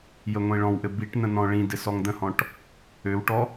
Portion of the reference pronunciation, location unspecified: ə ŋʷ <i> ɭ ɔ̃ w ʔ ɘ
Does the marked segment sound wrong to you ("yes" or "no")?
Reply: yes